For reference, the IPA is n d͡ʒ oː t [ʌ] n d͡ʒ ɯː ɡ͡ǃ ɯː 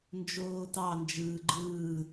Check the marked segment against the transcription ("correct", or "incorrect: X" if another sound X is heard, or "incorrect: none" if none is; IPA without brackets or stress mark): incorrect: ɑ